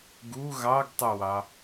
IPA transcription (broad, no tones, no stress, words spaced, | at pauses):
ɡu ɣɑɡtˤuwɑ